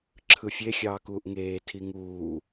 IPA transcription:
ǁʰɯfʲe xʲɑːkuːʔŋeː tʰiŋuː

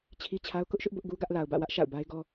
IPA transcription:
t͡ɕʰi˦t͡ɕʰa˦ʊ̯ kʊ˦ʔʃʊ˦ʔ bʊ˦ʔɡu˦ɡä˦ʔ la˨ʊ̯bä̰˦˨wä˦ʔ ʃa̰˦˨ʊ̯ba˦ɪ̯ɡɔ˦

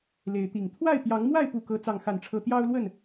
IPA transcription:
le˨˦ɪ̯t̪i˨˩ŋ t̪ʰwa˥˨ɪ̯pjɑ˨˦ŋmwa˥˨ɪ̯ pu˥˨kɤ˦ t͡sɑ˥˨ŋxa˥˨nʈ͡ʂʰɤ˦ t̪jɑ˦ʊ̯lwə˥˨n

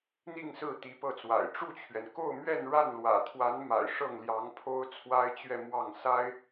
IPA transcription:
n̪i˥˧ŋsɹ̩˥˩ t̪i˧˥pɤ˥˩t͡swa̰˨˩ɪ̯ ʈ͡ʂu˥˩t͡ɕʰɥɛ˩n ko˥˧ʊ̯mɥɛ˥˧nɻa˥˩n lwä̰˨˩t̪ʰwa˧˥nma̰˨˩ɪ̯ ʂɤ˥˩ŋljɑ˧˥ŋpʰo˥ʊ̯ t͡sʰwa˥ɪ̯t͡ɕɥɛ˥˧mwɑ˥˩ŋ sa˥ɪ̯

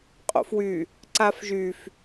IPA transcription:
qʼo̰fwy | ǀafʒyf

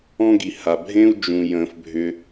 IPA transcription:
ɔ̃˥ɡi˩ ha˩bʱẽ˥u̯ d͡ʒũ˩jə̃˩fbʱʏ˩

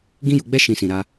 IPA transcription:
ɡĩ˦ju˧ɡ͡bɛ˦ ʃĩ˧sĩ˨ɾa˧

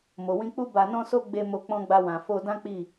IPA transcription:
mo˨wĩ˧k͡pu˦ ba˧nɔ̃˦so˦ ɡ͡be˧mo˧ k͡pɔ̃˧ɡ͡ba˧ wã˨ fo˧ dã˦k͡pi˦˨

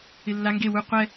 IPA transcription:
ɪlːa ŋɡe wu qʷɛ

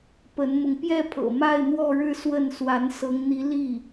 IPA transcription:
pə˧˥nmʊ˧ŋ pjɛ˥˩pʰɤ̰˨˩ ma˥˧ɪ̯ n̪wɔ˥˧ɻɻ̩˥˧swə˥˩n swa˧˥nsɤ˧˥ŋn̪i˧˥ li˥˩

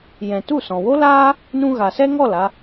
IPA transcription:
jɛ̃˨tu˦˨sɔ̃˨ wo˦laː˦ | nũ˧ɣa˨sɛ˦ŋɔ˦˨l a˧

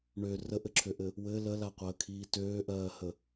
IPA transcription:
ɳø rəʔɘǁʰøʔɘ | wɘ ləlaqʷəːkʰiː tøːʔɜːhə

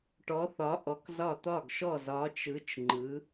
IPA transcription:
ʈɔ˨˦θɒ˨˦ ʔɔ˨˦kzɒ˦˨ t̪ɒ˦˨ɡʃɔ˦˨ zɒ˨˦t͡ʃɯ˨˦t͡ʃ ŋ͡ǃɯ˨˦

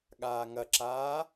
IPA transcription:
ɠaːŋɐǁaː

